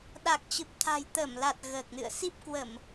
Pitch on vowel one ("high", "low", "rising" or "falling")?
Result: low